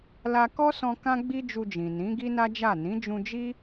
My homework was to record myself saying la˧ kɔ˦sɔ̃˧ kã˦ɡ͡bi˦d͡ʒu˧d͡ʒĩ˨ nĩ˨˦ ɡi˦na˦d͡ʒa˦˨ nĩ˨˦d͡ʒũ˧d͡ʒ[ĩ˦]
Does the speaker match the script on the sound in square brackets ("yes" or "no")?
no